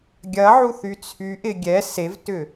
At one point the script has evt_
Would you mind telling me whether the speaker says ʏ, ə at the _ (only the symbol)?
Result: ʏ